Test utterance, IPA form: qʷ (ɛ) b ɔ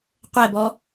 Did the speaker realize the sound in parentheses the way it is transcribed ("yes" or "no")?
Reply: yes